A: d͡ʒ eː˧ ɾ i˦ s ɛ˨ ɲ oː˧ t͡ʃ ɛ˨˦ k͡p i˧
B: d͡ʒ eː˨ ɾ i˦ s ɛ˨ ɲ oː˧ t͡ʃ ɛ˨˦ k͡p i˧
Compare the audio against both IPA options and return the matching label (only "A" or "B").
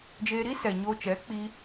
A